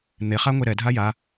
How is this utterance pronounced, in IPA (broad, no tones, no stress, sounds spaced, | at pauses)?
n̪ e χ a ŋʷ e ɾ ɛ dʱ a j a